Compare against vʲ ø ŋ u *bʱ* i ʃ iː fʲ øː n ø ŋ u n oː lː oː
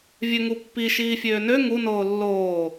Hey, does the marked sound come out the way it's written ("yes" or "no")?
no